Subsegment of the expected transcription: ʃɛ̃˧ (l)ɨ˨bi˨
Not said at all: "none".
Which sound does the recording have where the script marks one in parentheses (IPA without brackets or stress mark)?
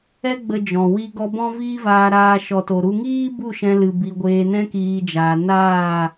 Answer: l